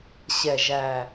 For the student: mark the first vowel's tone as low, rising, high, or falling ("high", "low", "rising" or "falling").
low